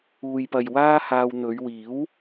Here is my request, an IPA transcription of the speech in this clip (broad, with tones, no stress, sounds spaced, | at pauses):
uː˨ j p ɐ˨ j w aː˥ h aː˧ w n̪ ɵ˨˧ ɥ w iː˨˥ w